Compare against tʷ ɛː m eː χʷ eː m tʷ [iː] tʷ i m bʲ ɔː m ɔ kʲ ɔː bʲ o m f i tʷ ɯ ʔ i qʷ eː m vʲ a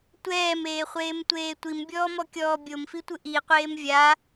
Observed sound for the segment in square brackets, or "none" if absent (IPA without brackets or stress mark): eː